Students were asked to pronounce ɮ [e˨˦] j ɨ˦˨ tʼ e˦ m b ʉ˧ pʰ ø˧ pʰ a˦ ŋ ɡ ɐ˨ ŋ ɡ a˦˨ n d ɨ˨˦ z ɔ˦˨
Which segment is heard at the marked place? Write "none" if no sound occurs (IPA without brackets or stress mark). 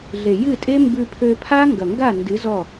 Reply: e˨